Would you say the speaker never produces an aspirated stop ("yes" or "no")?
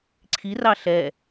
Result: no